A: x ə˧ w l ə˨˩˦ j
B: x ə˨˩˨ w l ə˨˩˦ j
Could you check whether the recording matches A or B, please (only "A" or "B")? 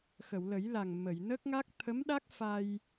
B